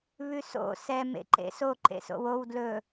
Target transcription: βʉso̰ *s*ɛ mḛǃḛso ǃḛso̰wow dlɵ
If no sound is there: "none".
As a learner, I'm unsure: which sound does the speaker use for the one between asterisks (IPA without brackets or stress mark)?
s